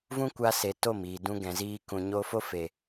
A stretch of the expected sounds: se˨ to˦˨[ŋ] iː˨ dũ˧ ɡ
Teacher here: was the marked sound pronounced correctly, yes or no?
no